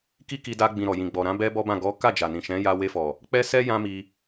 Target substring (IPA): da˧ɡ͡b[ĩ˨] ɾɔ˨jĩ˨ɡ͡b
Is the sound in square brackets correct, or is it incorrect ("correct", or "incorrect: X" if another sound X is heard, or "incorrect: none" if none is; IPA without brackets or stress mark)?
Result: correct